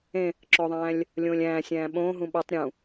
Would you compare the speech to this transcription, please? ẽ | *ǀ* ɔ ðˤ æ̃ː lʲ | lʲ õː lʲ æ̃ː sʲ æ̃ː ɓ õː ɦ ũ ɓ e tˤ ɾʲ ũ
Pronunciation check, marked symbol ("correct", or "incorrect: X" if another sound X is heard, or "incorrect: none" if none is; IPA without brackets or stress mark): incorrect: ǁ